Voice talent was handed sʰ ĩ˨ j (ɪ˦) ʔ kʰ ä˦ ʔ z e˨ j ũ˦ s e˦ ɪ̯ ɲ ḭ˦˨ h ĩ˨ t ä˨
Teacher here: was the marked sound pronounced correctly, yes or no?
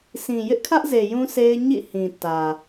yes